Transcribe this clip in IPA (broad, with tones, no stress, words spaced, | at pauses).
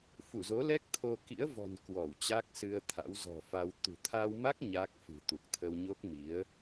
fu˧˩zo˨˦lɛ˦˥k̚t̪ʰo˧ kḭ˧˥ə̯vɔ̤˨˩n kwɔ˧˩wt͡ɕa˦˥k̚sɨ˧ə̯t̪ʰa̰˧˥w zɔ̤˨˩fa˧w t̪ṳ˨˩t̪ʰa˧wma˦˥k̚ ɲaː˦˥k̚fɨ̤˨˩t̪u˨˩k̚ t̪ʰə˧wɲo˦˥k̚mi˨˦ə̯